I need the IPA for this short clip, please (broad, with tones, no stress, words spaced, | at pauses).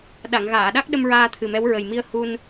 ɗa˨˩˨ŋɣaː˨˩˨ɗa˦˥k̚ɗə˧m ɹaː˧t̪ʰɨ˨˩mɛ˧˥w ɹə˨˩jmi˧ə̯ hu˧n